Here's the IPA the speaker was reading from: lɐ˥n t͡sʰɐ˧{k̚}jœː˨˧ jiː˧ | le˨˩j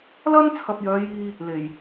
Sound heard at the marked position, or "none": p̚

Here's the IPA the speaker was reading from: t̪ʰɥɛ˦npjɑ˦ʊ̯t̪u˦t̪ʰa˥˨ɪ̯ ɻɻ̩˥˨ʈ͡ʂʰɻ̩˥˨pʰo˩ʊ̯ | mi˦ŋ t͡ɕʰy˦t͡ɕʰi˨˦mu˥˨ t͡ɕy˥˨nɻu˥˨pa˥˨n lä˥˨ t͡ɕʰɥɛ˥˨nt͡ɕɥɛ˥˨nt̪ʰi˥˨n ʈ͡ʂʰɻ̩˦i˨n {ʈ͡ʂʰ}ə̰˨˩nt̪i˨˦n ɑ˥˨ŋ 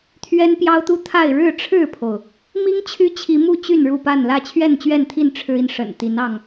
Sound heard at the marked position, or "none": ʂ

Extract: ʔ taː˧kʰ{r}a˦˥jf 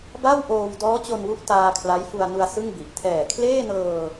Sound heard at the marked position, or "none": l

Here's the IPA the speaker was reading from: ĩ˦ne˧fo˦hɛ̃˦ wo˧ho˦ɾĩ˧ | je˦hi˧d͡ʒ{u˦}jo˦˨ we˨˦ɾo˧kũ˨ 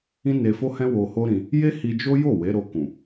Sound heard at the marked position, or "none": o˦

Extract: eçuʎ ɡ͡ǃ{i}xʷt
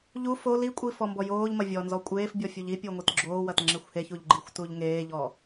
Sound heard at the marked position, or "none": i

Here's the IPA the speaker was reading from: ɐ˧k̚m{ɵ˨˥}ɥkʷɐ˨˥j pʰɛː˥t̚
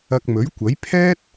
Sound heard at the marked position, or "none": ɵ˨˥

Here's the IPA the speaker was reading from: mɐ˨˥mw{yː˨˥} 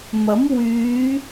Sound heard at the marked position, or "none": yː˨˧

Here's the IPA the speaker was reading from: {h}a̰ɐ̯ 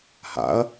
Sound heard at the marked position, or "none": h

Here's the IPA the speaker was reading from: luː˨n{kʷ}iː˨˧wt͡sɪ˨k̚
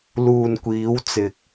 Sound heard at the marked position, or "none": kʷ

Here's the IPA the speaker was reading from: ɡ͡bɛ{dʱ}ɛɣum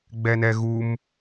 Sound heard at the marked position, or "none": n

